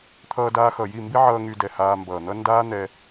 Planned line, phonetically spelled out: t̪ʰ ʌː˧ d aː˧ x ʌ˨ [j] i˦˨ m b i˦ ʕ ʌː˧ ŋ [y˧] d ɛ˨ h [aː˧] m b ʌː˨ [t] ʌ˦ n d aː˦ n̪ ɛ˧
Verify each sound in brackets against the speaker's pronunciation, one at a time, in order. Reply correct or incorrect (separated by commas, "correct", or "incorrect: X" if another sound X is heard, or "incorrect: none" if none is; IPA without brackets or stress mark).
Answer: correct, correct, correct, incorrect: n̪